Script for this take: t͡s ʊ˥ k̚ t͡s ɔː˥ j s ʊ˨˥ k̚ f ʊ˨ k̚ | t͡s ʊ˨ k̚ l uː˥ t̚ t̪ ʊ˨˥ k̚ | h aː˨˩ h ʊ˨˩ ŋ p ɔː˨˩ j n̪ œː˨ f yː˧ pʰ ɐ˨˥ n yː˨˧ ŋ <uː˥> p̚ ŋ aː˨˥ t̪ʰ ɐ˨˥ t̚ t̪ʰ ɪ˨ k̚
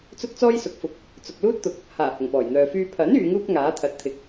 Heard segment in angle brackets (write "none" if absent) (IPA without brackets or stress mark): uː˥